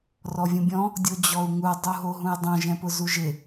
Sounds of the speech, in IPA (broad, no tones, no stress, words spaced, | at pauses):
rɔvʲũbʲɔ̃ | dʲod͡ʑɔu̯ŋu dˤuɦoɦũjdˤõ ʒɛ̃pʊzuʒɪ